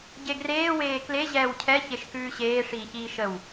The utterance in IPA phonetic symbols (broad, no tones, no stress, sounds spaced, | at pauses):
ɟ e ɡ r eː w eː k l e ʑ ɛː w cʰ ɛ ç e ʃ k ʉː ɕ eː ʂ iː ç iː ʃ ə w